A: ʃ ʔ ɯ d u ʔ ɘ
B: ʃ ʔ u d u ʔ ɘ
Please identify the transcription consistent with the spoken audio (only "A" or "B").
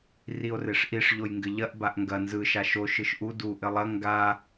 B